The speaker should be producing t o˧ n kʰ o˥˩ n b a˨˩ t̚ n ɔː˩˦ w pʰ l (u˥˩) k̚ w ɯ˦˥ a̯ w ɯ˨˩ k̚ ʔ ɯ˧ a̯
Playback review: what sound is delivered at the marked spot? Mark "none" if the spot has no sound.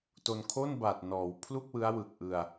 u˥˩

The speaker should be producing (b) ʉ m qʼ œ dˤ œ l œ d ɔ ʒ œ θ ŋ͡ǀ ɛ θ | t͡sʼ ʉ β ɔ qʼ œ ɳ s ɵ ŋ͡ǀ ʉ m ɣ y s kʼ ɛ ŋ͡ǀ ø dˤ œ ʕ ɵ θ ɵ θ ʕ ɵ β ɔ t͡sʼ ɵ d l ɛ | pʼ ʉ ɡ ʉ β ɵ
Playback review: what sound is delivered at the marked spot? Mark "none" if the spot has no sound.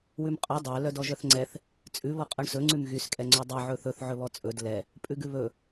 w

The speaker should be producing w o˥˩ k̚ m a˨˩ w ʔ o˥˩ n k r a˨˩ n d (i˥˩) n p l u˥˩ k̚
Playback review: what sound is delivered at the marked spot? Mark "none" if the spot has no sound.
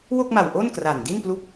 i˥˩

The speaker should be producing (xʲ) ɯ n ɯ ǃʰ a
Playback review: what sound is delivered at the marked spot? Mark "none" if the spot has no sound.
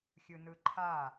xʲ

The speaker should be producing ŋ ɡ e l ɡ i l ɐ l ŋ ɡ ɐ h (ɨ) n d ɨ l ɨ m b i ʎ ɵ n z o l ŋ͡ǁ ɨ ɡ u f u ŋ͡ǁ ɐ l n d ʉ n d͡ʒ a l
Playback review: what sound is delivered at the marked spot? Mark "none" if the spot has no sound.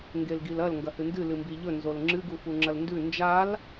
ɨ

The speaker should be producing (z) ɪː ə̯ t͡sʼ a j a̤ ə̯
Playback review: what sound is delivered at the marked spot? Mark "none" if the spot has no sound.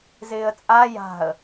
z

